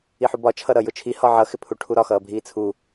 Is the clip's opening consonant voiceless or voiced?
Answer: voiceless